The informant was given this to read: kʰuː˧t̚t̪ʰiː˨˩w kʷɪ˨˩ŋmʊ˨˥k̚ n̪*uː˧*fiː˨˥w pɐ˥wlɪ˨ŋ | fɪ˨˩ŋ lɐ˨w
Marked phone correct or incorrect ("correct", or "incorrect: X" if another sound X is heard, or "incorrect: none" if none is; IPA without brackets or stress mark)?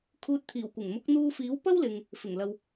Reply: correct